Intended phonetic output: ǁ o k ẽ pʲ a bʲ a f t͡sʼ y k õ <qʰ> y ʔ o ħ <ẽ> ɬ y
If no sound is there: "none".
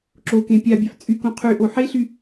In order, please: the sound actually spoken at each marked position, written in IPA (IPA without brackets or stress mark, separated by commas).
qʰ, e